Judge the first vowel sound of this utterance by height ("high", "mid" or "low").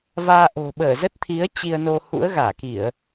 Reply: low